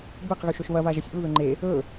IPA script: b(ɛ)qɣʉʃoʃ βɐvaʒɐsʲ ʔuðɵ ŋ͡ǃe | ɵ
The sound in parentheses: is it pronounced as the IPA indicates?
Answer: no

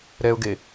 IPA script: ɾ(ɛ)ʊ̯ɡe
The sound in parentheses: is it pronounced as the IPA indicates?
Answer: yes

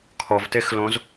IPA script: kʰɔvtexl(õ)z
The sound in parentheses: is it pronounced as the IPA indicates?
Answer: yes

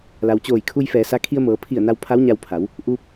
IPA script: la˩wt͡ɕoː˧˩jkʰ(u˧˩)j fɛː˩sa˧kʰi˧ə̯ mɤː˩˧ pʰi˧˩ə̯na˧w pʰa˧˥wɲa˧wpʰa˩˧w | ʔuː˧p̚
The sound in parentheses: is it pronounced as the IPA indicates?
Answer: no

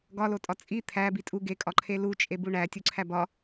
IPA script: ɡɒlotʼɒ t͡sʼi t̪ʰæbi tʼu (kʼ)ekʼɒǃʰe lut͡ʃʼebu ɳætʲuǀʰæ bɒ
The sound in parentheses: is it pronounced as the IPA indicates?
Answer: no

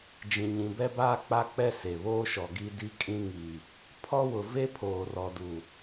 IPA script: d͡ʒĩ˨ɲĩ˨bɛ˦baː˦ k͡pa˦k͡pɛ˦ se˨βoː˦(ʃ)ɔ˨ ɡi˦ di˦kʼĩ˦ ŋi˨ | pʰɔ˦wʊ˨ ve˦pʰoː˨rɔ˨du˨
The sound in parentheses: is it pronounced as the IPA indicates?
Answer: yes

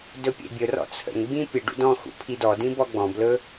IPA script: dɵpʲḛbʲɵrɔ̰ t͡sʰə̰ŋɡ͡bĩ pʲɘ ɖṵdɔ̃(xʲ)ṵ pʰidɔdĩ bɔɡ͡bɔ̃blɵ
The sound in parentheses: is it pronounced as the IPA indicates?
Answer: no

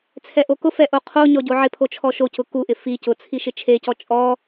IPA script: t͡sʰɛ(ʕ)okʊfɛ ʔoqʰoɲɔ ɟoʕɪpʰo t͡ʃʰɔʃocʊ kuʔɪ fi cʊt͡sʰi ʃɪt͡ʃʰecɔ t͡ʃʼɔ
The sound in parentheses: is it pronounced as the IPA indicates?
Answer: no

